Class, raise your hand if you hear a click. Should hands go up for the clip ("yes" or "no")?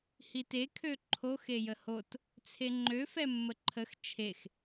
yes